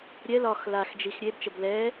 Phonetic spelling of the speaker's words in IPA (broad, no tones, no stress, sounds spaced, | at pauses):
ɾʲ ɛ l ɒ x l a x d͡ʒ i x ɾʲ e b t͡ʃ ə b l ɛː